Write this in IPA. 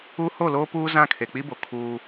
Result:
u˦ h o˦˨ l oː˦ p uː˦ z ã˦˨ kʰ e˨ k͡p i˦ b o˨ kʰ uː˦

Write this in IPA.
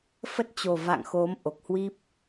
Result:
f ə˦˥ t̚ t͡ɕ o˨˩ v a̰˧˨ ŋ x o˨˦ m ʔ o˨˩ k̚ h w i˦˥ p̚

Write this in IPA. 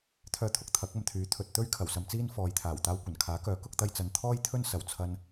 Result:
t̪ʰ œː˧ t̪ʰ ʊ˨ k̚ t̪ʰ ɐ˨˥ k̚ ɐ˨ m t̪ʰ yː˨˥ t̪ʰ ɵ˨ t̚ t̪ ɵ˥ ɥ kʰ ɐ˨˩ w s ɐ˧ m t͡s iː˥ n f ɔː˨ j t̪ʰ aː˨˩ w t̪ aː˧ w kʷ ɐ˨˩ n kʰ aː˨˥ k œː˨˥ k ʊ˧ k̚ t̪ ɐ˧ j t͡s ɐ˨ n t̪ʰ ɔː˥ j t̪ʰ ɵ˥ n s ɐ˨˩ w t͡sʰ ɐ˧ n

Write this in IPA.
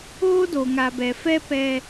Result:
oː˦ d o˨ ŋ a˨ b ɛ˨ f ɛ˦ p ɛ˦

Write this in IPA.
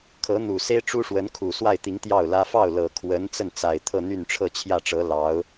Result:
kʰ ɤ˧˥ n̪ u˨˩ s e˥ ɪ̯ ʈ͡ʂ u˥ ʂ w ə˧˥ n kʰ u˨˩ s w a˥˩ ɪ̯ t̪ i˧˥ ŋ t̪ j ɑ˥˩ ʊ̯ l ä˥ f ɑ˥˩ ʊ̯ l ɤ˨˩ kʰ w ə˧˥ n t͡s ə˥˩ n t͡s a˨˩ ɪ̯ t̪ʰ ɤ˥˧ n̪ y˥˧ n ʈ͡ʂʰ ɤ˥˧ t͡ɕʰ j ä˥˩ ʈ͡ʂ ɤ˧˥ l ɑ˧˥ ʊ̯

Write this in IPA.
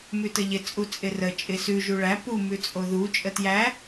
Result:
m ʉ t ə ʎ ɪ t͡sʼ u t͡sʼ ɪ r ə t͡ʃʼ ɪ s ʉ ʒ u ɭ æ p u m ʉ t͡sʼ o ð u t͡ʃʼ ə t j æ

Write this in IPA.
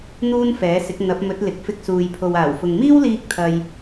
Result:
n̪ uː˥ n f ɛː˨˥ s ɪ˨˥ k̚ n̪ ɐ˨˥ p̚ m ɵ˨˥ t̚ l ɪ˨ k̚ f ɪ˧ k̚ s uː˨ j pʰ o˨ w aː˨˩ w f ʊ˨ ŋ m iː˥ w l iː˥ k̚ t̪ʰ ɐ˧ j

